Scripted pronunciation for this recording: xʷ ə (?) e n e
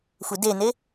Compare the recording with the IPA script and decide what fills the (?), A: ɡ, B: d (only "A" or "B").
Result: B